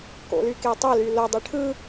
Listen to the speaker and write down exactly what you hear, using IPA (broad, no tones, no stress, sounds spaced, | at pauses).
k o̰ l y k e tˤ o l y l o dˤ i ʈʰ ɯ